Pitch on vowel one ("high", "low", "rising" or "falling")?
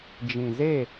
low